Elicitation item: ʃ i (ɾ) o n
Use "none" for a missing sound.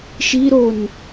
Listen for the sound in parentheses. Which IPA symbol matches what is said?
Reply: ɾ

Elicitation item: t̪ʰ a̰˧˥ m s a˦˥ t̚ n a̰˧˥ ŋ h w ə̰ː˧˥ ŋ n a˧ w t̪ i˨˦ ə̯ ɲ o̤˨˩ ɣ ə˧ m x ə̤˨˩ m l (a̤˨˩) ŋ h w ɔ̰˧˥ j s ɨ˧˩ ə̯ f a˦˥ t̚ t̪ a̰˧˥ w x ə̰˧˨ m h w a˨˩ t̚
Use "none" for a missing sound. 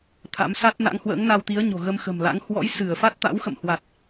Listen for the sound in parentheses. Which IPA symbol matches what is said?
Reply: a̰˧˥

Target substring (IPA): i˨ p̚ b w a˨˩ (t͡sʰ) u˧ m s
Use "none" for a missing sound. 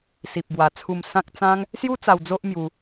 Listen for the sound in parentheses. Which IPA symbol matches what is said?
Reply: t͡sʰ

